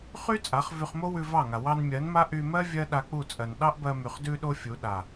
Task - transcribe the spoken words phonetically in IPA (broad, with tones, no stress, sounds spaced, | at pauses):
χ y˦ t͡sʼ a˨˦ χ v y˧ χ m o˦ w ʉ˧ v ɑ˦˨ ŋ a˨ w ɑ˧ n mʲ ɜ˨˦ n m a˦ ʔ y˧ m ɜ˦ vʲ ɜ˦ ɗ a˧ k͡p u˦˨ t͡sʼ ɜ˨ n ɗ ɑ˦ ʔ b ɜ˧ m y˨ χ d ʉ˧ ɗ o˧ fʲ u˨˦ ɗ a˨